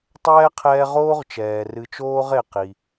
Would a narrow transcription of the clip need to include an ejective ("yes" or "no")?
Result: no